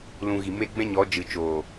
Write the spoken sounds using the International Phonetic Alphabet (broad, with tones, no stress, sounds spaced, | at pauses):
l ũ˧ ɣ i˨ m e˦ ɡ͡b ɛ̃˦ ɲ ɔ˨˦ d͡ʒ ɨ˨ t͡ʃ oː˨